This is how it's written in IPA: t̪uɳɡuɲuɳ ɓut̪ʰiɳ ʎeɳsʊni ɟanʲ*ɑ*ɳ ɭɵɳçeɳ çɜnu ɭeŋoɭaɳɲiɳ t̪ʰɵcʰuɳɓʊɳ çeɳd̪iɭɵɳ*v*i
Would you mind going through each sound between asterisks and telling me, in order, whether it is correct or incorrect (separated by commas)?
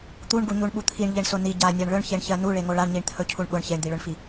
incorrect, incorrect